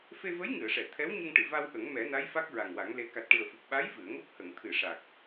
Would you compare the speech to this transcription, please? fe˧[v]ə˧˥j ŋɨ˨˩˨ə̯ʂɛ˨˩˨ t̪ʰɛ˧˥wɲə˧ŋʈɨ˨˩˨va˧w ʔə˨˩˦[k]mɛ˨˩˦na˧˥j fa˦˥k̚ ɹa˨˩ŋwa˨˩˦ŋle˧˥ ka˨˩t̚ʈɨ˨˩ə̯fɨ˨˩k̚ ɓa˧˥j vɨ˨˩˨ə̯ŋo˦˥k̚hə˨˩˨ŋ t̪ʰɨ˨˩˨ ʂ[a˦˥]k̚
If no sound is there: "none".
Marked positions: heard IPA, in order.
v, ŋ, a˨˩

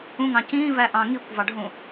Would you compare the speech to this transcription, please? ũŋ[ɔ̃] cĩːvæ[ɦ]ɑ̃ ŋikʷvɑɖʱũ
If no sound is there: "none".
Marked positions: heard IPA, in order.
ɑ̃, ʔ

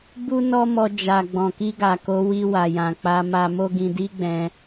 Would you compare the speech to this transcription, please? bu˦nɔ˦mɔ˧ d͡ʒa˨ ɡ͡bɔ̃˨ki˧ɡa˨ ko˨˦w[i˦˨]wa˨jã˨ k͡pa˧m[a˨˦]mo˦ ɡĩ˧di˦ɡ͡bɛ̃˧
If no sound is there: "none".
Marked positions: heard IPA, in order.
i˧, a˧

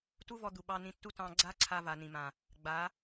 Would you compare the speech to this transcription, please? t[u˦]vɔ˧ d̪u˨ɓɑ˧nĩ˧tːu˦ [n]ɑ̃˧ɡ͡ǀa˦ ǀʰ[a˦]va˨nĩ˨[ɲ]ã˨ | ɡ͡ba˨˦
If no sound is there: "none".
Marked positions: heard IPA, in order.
u˦, t, a˧, m

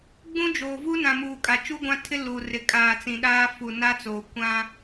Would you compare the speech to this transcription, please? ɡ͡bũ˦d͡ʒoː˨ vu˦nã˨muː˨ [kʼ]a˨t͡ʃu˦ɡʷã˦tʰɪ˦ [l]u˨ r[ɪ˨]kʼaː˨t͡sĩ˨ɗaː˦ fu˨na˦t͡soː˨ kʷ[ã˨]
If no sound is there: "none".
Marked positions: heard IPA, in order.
kʼ, l, ɪ˨, ã˦

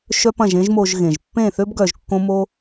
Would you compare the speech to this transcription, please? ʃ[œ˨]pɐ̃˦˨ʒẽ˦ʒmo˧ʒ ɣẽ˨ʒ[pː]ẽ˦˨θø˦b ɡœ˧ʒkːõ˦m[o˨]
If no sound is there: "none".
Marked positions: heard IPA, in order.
œ˦, pː, o˦

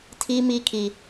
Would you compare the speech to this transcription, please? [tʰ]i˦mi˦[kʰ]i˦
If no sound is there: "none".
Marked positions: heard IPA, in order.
tʰ, kʰ

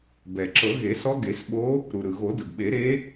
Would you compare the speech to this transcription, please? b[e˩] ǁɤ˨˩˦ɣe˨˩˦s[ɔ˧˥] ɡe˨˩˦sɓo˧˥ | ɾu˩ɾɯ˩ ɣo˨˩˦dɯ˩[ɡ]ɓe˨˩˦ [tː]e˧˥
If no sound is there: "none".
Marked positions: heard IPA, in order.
ɛ˩, ɔ˧˥, ɡ, ɾ

